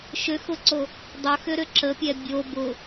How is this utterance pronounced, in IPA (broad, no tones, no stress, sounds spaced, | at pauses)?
ʃ ʏ x ʊ ǀ o | dˤ ʊ x ʏ ɾ ʏ ǁ ə pʲ ɛ bʲ o b ʊ